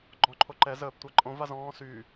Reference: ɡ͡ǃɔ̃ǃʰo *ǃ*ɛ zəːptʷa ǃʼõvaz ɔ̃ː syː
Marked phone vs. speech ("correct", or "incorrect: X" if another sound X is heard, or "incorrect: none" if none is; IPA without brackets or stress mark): correct